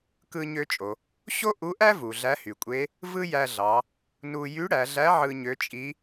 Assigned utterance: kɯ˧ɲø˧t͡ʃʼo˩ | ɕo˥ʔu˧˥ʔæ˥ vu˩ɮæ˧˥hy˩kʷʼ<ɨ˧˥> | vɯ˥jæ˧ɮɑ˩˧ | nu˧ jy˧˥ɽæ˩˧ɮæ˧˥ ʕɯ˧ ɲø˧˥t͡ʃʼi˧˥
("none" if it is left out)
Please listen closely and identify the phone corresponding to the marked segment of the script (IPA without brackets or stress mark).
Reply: e˧˥